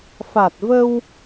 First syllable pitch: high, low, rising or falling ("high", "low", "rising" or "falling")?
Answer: low